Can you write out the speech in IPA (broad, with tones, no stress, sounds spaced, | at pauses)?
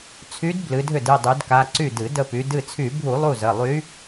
t͡sʰ y˧˥ d b l ɨ˩˧ dʱ ʏ˧˩ d ɨ˩˧˩ dˤ y˩˧ d k a˩˧˩ ǀ y˧˩ d ɨ˧˩˧ d ə˧˩ p y˩˧ d ɨ˧˩ t͡sʰ y˧˩˧ bʱ u˧˩˧ lˠ u˧˩ z ə˩˧˩ lˠ y˧˥